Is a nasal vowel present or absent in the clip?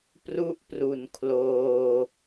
absent